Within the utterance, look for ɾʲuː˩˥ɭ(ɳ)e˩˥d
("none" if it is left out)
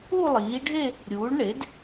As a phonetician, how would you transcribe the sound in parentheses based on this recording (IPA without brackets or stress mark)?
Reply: ɳ